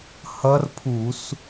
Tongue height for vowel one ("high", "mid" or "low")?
mid